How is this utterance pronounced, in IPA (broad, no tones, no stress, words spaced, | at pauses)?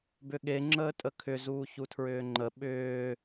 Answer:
bʏɠe ŋ͡ǁəːtʼəkʰʏ zuːçutʰɹʏːŋ͡ǃə ɓʏː